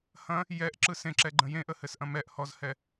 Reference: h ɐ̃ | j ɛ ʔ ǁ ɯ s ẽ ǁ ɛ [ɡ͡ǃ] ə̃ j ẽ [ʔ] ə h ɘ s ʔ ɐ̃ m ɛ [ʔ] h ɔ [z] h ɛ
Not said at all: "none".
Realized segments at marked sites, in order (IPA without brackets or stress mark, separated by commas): ɡ͡ǃ, ʔ, ʔ, z